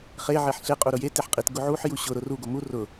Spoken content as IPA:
χ e ʕ e ħ ɬ e qʼ u ɾ ʊ j e t e ħ qʼ i t ɡ ʊ ʕ u ħ j u ɕ ʊ ɾ ʊ r u ɡ o m u r ʊ

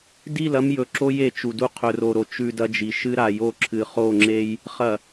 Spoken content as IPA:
d i˦˨ l ɐ˦ m j ɵ˨ ǁ o˦ j e˨ t͡ʃ u˨ d u˦ qʰ ɵ˨ r o˨ ɾ o˨ t͡ʃ ʉ˨ d ɐ˦ d͡ʒ i˨ ʃ ɨ˦ ɾ a˨ j o˦˨ ǁʰ ɨ˨ χ o˦˨ ŋ͡ǁ e˦ j | χ ɐ˨

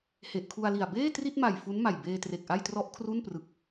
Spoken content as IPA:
h e˨˩ ʔ kʰ u˧ a̯ l i˨˩ a̯ b eː˥˩ t r i˥˩ t̚ m a˨˩ j f u˦˥ n m a˨˩ j b eː˧ t r e˨˩ k̚ ʔ a˥˩ j t r ɔ˦˥ ʔ kʰ r u˥˩ n p r ɯ˨˩ k̚

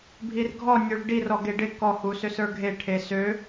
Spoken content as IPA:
bʱ i r ɡʱ ɔ nʲ ø ɭ ɖ i r ɔ ɡ e ɖ ɪ k ɔ h u s ø s ə˞ ɡʱ e ʈʰ e s ø

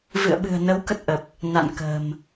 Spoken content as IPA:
v ɨ̰˧˨ ə̯ ɓ ɨ̤˨˩ ə̯ n ə˨˦ w k ə˦˥ t̚ ʔ ə˨˩ p̚ | n a̰˧˨ n k ə̤˨˩ m

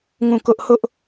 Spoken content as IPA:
ŋ ũ˦˨ k ʊ˦ ʔ h ʊ˦ ʔ

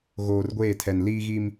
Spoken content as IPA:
ɣ oː˨ r ɡʷ eː˦˨ tʰ ɛ˨ n l iː˦ ɣ i˦ m

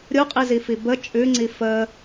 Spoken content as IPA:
ɾʲ u qʼ i z i f i b ə t͡ʃʼ ʉ ŋ͡ǀ i f ə

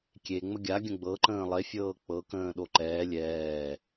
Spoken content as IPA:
kʲ e ŋ͡m ə ɡʲ a ɡʲ ə̃ ɡ͡b ɤ ǃ ə̃ː lˠ e fʲ ɤː k͡p ɤ k ə̃ː ɗ o ǃ ɛː lʲ ɛː

